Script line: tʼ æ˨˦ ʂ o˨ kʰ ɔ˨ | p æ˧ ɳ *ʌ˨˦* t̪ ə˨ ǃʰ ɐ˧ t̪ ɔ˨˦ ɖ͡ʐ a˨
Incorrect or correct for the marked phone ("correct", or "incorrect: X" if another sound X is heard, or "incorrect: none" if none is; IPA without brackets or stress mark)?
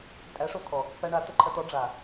incorrect: a˨˦